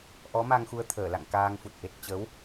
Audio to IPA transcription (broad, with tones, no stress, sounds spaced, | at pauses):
ʔ ɔ˨˦ m a˧ ŋ x u˧ ə̯ t̪ʰ əː˧˩ l a̰˧˨ ŋ k aː˧ ŋ f u˨˩ t̚ ʔ e˨˩ t̚ t͡ɕ ə˨˦ w